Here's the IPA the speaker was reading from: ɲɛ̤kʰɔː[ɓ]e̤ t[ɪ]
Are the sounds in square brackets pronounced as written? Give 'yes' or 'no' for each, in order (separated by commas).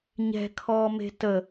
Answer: no, no